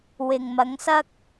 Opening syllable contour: low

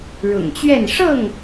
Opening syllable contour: low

